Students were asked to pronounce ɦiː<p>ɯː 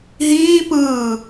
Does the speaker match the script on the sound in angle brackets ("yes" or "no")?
yes